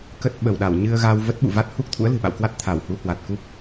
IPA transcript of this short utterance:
k ə˦˥ t̚ ɓ ə˧˩ w ɗ a˧˩ w ɲ ɨ˧ ə̯ ɣ a˧ w v ə˦˥ t̚ ɓ ṵ˧˨ v a˦˥ t̚ h u˦˥ k̚ t̪ʰ ṵ˧˥ ə̯ l ɨ̤˨˩ ɓ a̰˧˨ w k w a˦˥ t̚ t̪ʰ a˧˩ w h u˨˦ h w a˨˩ t̚ k u˦˥ p̚

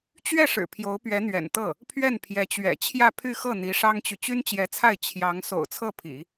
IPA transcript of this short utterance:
t͡ɕ ɥ ɛ˥˩ ʂ ɻ̩˨˩ pʰ j o˧˥ ʊ̯ p ɥ ɛ˧˥ n̪ ɥ ɛ̰˨˩ n t̪ ɤ˥˩ | pʰ ɥ ɛ˥˩ n pʰ j ɛ˧˥ t͡ɕ ɥ ɛ̰˨˩ t͡ɕʰ j ä˥˧ pʰ y˥˧ x ɤ˥˩ n̪ i˧˥ ʂ ɑ˥ ŋ t͡ɕ y˨ t͡ɕ y˥ n t͡ɕ j ɛ˧˥ t͡sʰ a˥˩ ɪ̯ t͡ɕʰ j ɑ˧˥ ŋ s o̰˨˩ ʊ̯ t͡sʰ ɤ˥˩ pʰ ḭ˨˩˦

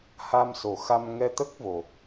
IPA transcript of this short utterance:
h a˧ m s o˨˩ x a˧ m ŋ ɛ˧ t̪ ə˦˥ k̚ v o˨˩

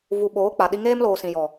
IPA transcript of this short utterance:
v u˨ ɓ oː˨˦ k͡p a˨ ɗ i˦ ŋ eː˦ m l oː˨ s ĩ˨ j ɔ˨

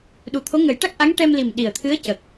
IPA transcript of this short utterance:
ɗ u˨˩ t̪ʰ o˧˥ ŋ ə˨˩˦ j ʈ a˦˥ k̚ ʔ a˧˥ ŋ ʈ ɛ˧ m l i˨˩ m ɗ i˨˩ ə̯ t̪ʰ ɨ˧˥ ə̯ c ə˨˩ k̚

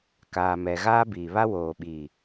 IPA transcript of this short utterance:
k aː˨ m ɛ˨ ɣ aː˦ b iː˨ β a˦ w oː˨ ɓ iː˨

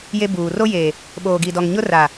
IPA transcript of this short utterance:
j e˦ b uː˨ r o˦ j eː˨ | ɓ oː˨ ɡ i˨ d ɔ˨ ŋ ɲ ʊ˦ r a˨

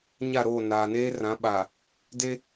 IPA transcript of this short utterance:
ɲ a˦˨ ɾ oː˦˨ n aː˨ n eː˦ r ã˨˦ ɓ aː˨ | d e˦

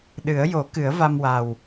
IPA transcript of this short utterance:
ɗ ɨ˨˩˦ ə̯ j o˨˩˦ k ɨ˨˩˦ ə̯ v a˧ m w a˨˩ w

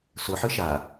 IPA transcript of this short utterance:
s ʊ ħ ɨ ʃ a

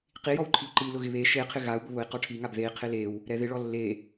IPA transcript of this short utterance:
q i j ɔ w ǃʰ i u̯ ǃ i l ʊ ɣ ɪ β e ʃ e qʰ ɪ ɣ a u̯ b ʊ β ʊ i̯ q ɔ ʈʰ i ŋ a b ð e i̯ qʰ ɪ l e w | ɾ ɛ ð ɪ ɭ ɔ lː e

